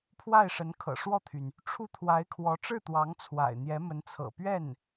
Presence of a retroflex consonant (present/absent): present